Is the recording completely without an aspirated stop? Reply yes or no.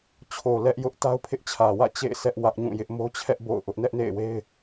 no